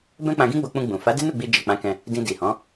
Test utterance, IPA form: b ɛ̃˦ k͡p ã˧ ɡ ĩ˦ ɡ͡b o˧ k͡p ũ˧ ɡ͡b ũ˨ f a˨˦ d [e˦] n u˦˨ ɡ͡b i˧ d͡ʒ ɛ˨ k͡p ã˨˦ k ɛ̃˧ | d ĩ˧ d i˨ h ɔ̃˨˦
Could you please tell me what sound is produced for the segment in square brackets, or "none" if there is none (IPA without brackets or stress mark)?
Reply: e˦